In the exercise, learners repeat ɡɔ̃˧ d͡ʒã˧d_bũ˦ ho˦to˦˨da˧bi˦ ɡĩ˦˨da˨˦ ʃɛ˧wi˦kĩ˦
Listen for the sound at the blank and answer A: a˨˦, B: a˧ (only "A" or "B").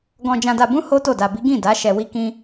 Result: B